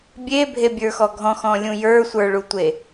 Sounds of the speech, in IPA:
bʲebʱebʲə˞xɔ ɡʱɔ̃xɔ̃lʲũ jə˞sʷə˞ɭutʷe

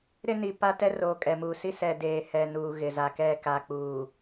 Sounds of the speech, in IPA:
ɾɪ˦ni˨ pa˦ tɛ˦roː˨ kʼɛ˨muː˨ si˦ sɛ˨ deː˨ hɛ˨nuː˨ ɣɪ˨ za˨kɛ˦˨ ka˨k͡puː˨

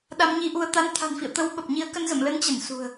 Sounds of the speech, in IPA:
ɗa˧mɲi˧ʔu˧ə̯ t̪a˨˦nt̪ʰa̤˨˩nfḭ˧˨ə̯ t̪ə˧w ɓə˨˩p̚ ɲi˨˦ə̯kə˧n zə̰˧˨mlə˨˦nt͡ɕə˧˩n sṳ˨˩ə̯

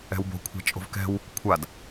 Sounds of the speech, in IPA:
ɛ̤wbo̤kʷʰa̤ t͡ʃʼo̤vkɛ̤w | kʷʰad

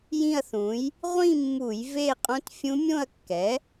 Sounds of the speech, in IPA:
jĩ˥˧ɐ̯θũ˩˥j | ʁʷĩ˥˧mːu˧˩˧j ve˥˧ qʼõ˦˥tfʲũ˦˥mʲõ˥˧ɐ̯kːɛ˩˥

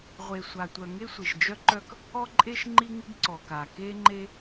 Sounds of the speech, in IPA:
ʁʷe˩sʷa˩tʷœ˩ ŋe˥sʷi˩ʃ d͡ʒœ˥ǃœ˥k | ɔ˥ǃʼe˥ʃ ŋ͡ǃi˥ŋi˥ɡ ǀɔ˩ka˩ ke˥ŋ͡ǃe˥

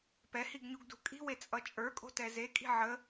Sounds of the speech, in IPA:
pɛhiɡɲuɡdṳ kʼi̤wet͡sʼʌ t͡ʃʼə˞kʼo̤tɛ zekʼi̤ ʕə

